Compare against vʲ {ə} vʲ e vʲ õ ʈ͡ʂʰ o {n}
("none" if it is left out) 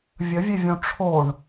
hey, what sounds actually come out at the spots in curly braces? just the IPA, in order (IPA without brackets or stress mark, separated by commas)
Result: ə, ɳ